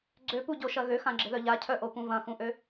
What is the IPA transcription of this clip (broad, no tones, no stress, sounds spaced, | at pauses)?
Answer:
ɡ͡ǀ ø p u ɟ o ʃ ɐ ɣ ø x ã ɡ͡ǁ ɪ ð œ ʎ a cʰ œ ʔ o p ũ v ɐ̃ x ũ ʔ ø